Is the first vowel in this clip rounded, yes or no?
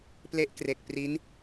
no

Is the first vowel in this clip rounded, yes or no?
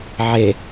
no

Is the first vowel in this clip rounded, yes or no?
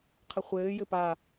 no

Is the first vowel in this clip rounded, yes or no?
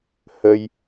no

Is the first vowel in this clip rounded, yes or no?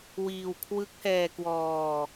no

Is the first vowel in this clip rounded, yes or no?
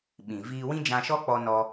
no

